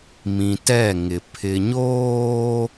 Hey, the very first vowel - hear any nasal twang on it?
yes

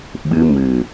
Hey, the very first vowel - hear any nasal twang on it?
no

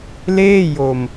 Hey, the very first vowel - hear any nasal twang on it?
no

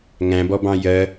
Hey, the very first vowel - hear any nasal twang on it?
yes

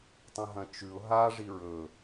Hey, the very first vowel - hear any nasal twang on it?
yes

